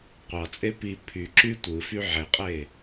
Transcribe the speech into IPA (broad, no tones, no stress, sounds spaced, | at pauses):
qʷ ɑ t͡sʼ e p i pʰ y ǁ y tʷ ɯ f y ʕ e qʼ e